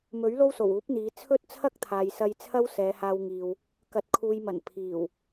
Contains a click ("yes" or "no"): no